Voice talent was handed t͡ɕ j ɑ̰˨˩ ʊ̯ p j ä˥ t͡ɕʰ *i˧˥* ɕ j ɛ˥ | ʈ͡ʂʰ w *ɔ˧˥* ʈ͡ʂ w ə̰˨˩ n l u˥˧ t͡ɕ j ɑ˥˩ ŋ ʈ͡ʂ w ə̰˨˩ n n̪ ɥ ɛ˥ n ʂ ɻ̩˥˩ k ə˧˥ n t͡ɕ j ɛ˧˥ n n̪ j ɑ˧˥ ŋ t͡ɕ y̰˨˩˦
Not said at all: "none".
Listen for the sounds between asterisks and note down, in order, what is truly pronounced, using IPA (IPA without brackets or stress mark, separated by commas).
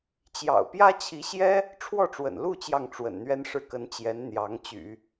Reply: i˧˥, ɔ˥˩